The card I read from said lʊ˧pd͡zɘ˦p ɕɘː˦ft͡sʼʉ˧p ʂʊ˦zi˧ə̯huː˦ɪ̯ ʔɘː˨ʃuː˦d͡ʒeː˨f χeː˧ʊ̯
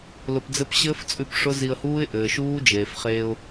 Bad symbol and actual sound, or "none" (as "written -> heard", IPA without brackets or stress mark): none